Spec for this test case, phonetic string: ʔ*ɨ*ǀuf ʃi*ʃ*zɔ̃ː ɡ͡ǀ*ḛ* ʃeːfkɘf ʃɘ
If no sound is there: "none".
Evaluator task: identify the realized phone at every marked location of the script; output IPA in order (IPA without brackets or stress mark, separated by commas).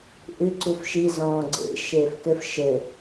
ɨ, none, ḛ